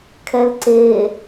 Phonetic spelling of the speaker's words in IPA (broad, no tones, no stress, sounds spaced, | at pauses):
kʰ ɛ l ǀ e